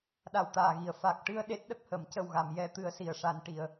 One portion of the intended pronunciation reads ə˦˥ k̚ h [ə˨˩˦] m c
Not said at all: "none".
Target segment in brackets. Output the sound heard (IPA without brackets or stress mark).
ə˨˩˦